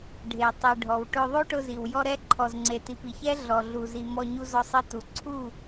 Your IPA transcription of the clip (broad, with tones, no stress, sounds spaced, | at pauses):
ɖʱ e˨ tˤ i˨ ɖʱ ɔ˨ w ʈ ʊ˧ ðˤ o˦ ʈ ʊ˧ z i˨ w j ɔ˧ ɾ ɛ˧ ǃʰ ɔ˨ z ŋ͡ǀ e˨ t i˨ p i˨ ç ɛ˦ ɮ ɔ˨ ɮ u˨ z i˨ m ɔ˧ ɲ u˧ z ɔ˧ sˤ i˧ t u˨ ǀʰ u˦˨